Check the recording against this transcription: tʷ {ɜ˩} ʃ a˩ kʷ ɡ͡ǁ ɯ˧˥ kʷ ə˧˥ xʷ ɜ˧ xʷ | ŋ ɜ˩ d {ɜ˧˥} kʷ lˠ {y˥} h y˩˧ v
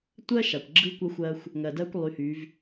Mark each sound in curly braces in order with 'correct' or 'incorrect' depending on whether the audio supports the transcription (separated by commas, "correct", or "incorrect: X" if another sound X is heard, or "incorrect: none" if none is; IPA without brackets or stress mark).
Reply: incorrect: ɜ˥, incorrect: ɜ˧, incorrect: y˩˧